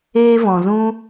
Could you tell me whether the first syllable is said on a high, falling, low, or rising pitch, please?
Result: high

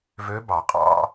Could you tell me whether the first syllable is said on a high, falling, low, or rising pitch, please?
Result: rising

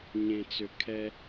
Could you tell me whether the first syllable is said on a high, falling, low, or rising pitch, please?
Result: low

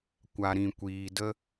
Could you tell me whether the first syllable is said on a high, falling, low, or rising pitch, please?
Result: low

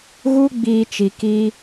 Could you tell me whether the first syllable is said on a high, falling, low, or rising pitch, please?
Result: high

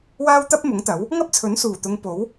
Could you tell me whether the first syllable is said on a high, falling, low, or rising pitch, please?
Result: high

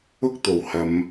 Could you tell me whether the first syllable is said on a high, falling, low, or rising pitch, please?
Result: high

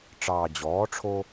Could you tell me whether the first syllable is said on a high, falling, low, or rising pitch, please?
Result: low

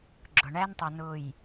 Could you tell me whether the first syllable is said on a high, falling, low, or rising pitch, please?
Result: low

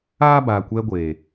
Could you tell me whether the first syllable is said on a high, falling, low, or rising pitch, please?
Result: high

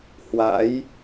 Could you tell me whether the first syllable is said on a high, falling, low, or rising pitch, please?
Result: rising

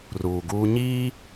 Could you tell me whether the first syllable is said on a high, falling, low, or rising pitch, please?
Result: low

